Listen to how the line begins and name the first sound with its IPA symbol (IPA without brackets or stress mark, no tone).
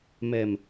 m